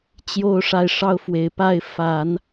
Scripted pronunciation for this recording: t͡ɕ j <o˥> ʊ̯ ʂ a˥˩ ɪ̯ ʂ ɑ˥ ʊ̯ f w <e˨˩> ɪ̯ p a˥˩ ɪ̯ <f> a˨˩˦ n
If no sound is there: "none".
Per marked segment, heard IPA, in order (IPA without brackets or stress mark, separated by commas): o˥˧, e˨˩, f